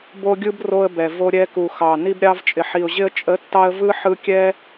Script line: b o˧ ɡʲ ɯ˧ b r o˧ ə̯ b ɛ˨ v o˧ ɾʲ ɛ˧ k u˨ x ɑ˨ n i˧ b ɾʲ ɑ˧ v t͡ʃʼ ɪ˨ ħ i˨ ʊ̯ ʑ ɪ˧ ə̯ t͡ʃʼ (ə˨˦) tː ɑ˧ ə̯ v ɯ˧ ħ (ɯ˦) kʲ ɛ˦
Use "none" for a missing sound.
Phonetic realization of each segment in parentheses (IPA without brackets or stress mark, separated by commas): ə˨˦, ɯ˧